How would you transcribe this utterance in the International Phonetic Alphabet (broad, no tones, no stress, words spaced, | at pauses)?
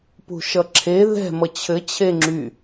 pṳʃʌǁʰe ðɛ̤ mʌt͡ɕʰɘ t͡ɕʰeŋ͡ǁy